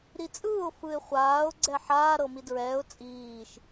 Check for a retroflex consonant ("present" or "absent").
absent